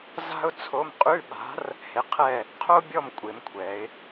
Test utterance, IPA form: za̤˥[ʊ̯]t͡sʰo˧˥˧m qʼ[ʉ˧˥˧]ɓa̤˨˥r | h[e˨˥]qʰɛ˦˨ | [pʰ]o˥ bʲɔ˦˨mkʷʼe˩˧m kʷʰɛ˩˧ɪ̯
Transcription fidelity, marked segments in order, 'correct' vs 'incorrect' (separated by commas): correct, correct, correct, incorrect